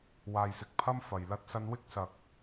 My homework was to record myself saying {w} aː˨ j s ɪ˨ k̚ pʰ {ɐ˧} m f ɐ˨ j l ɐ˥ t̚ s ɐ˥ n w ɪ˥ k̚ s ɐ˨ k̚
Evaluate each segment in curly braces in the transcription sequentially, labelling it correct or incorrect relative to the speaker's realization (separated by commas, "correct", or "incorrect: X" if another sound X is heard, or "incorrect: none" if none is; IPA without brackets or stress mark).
correct, incorrect: ɐ˥